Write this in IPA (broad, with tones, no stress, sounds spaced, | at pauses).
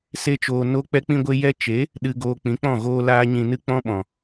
s e˦ t͡ʃ oː˧ n o˦ k͡p ɛ˦ k͡p ĩ˦ ɡʷ e˦ j ɛ˦ t͡ʃ e˨˦ | ɗ ɨ˧ ɡ oː˧ k͡p ĩ˨˦ k͡p ɔ̃˦˨ ɣ oː˦ l aː˦ ɲ ĩ˧ n ɨ˦ k͡p ɔ̃˦ ɓ ɔ̃˨